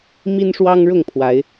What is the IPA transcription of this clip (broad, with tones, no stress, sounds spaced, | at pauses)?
m i˦ n ʂ w ɑ˦ ŋ ɻ ʊ˥˨ ŋ pʰ w a˨˦ ɪ̯